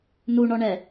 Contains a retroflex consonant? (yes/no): yes